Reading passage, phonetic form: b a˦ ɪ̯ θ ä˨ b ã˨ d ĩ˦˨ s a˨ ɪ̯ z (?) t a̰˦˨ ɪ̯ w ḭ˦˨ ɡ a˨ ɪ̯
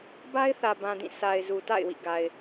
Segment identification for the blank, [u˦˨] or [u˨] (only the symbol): u˨